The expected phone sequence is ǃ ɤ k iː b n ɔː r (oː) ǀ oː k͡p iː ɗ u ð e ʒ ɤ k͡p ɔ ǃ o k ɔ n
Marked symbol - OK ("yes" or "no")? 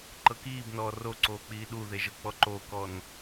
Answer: no